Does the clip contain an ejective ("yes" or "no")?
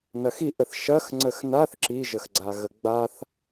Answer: no